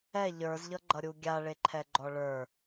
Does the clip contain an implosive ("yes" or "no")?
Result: no